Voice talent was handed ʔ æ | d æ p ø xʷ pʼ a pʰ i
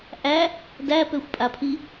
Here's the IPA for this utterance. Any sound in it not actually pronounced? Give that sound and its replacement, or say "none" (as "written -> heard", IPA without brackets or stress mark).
none